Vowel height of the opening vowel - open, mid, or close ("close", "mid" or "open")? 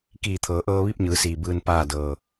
close